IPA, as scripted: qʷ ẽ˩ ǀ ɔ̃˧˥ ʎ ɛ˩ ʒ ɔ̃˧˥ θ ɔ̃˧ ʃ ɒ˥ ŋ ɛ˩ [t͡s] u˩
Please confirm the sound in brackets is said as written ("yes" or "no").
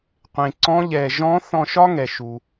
no